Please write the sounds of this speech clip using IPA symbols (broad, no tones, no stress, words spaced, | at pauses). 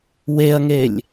weɐ̯ŋelʲ